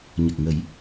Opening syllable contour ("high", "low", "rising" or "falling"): low